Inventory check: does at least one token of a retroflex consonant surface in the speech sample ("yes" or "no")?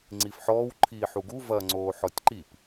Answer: no